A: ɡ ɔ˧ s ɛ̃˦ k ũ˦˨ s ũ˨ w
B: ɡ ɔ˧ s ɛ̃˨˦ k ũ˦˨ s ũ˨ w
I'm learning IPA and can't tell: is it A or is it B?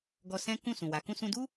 A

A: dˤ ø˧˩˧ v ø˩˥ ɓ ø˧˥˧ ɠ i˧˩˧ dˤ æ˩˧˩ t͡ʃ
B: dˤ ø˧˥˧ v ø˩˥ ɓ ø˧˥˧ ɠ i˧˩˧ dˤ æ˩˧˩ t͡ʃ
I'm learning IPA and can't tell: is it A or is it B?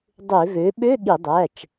A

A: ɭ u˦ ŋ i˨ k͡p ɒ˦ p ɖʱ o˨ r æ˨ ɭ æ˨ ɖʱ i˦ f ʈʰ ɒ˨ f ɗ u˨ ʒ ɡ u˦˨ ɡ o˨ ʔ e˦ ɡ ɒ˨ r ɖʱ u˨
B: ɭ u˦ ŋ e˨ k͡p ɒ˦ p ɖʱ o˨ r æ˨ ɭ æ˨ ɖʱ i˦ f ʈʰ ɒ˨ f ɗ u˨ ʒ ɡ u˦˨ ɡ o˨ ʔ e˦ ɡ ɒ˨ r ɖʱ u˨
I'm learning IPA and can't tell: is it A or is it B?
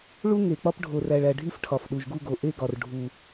B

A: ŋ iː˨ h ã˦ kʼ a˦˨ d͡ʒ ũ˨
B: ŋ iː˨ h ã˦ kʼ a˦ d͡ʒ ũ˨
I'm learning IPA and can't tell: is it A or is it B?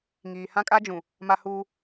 B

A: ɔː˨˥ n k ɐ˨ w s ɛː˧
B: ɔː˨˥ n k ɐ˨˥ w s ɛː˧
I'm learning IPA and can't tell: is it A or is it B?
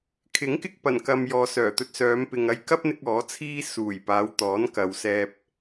A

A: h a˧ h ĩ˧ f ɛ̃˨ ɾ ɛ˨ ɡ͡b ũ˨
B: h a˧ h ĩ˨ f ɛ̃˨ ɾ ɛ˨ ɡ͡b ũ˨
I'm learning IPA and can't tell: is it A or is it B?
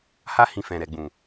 B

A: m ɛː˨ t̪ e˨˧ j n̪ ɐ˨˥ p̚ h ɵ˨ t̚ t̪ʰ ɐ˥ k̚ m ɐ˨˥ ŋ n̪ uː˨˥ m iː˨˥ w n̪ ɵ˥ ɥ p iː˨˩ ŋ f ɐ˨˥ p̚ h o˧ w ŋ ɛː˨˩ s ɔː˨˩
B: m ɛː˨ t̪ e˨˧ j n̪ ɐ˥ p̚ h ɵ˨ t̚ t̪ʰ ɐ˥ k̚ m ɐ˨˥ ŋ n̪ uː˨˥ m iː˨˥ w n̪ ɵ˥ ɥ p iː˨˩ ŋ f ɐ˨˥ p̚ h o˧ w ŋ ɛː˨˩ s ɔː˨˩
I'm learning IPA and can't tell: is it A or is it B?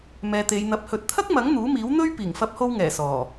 A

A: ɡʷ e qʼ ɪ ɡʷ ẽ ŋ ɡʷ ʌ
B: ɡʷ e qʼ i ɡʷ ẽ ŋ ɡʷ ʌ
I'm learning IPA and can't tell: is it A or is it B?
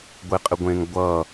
A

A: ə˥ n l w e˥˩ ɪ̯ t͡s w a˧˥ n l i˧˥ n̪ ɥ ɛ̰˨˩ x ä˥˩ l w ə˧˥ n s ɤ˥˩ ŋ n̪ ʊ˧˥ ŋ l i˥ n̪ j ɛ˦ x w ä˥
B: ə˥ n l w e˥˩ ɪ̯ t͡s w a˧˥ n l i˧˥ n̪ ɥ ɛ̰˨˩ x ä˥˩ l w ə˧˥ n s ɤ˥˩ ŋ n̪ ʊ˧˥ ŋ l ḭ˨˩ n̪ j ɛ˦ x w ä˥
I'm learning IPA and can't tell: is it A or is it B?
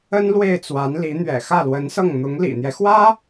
B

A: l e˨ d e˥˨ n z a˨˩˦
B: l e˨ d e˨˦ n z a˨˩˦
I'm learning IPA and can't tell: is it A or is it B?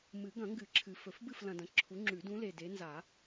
B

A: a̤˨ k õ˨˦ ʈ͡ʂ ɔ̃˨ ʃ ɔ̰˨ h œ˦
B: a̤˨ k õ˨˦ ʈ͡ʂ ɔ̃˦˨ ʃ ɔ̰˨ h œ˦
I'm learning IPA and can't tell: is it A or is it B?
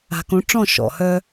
B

